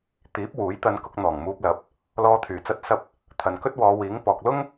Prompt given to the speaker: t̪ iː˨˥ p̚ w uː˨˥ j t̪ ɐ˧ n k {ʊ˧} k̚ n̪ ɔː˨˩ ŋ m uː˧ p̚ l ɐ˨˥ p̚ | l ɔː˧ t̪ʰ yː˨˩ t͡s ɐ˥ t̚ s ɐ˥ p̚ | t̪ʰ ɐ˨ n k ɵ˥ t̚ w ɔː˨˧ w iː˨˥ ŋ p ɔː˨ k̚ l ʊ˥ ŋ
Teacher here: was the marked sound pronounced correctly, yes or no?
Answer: yes